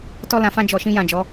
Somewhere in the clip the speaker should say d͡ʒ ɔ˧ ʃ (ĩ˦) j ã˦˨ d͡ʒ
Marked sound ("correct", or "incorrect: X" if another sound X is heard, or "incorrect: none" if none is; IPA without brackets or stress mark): correct